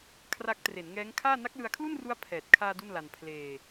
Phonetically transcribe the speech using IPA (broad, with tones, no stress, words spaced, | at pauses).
kʰra˦˥k̚ tre˩˦nŋɛː˦˥ŋkʰaː˥˩ na˦˥k̚lɯ˧a̯kʰlu˥˩nru˦˥a̯ pʰɛː˨˩t̚ kʰaː˧ du˥˩nla˧n pʰleː˧